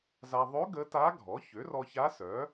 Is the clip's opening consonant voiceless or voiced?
voiced